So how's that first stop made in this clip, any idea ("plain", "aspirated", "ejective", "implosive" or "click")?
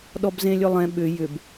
implosive